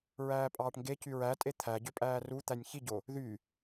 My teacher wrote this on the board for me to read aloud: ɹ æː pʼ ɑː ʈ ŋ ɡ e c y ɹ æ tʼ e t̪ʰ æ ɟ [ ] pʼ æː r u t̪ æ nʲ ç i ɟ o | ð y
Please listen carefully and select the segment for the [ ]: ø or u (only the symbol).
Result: ø